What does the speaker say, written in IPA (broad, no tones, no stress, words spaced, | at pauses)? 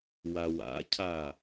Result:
wawa̰cʰa